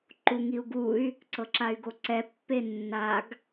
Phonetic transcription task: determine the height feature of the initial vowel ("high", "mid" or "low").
high